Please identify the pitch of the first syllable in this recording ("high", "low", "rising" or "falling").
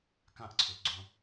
falling